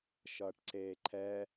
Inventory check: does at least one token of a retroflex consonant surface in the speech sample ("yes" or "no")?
yes